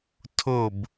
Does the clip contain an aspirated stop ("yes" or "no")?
yes